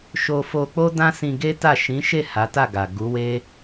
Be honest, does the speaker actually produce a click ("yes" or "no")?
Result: no